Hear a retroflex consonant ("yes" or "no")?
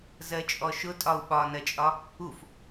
no